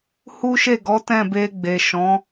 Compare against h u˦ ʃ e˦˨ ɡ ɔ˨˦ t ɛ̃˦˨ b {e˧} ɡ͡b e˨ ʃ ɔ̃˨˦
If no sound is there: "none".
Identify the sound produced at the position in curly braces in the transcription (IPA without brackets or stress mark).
e˧